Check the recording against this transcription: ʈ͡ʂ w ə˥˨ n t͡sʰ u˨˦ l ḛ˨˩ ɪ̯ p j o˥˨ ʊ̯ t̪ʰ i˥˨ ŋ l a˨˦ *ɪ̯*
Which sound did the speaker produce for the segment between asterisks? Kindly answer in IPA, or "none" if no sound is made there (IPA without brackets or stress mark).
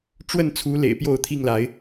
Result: ɪ̯